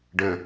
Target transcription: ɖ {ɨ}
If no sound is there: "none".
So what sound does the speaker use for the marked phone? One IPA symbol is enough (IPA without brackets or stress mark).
ə